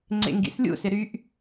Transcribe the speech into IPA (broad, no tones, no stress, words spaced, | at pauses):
ŋ͡ǀḛŋɡḭslʲṵsɪ ɾyʔ